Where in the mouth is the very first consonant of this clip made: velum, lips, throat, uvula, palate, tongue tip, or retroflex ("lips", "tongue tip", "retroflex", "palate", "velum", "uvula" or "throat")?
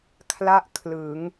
velum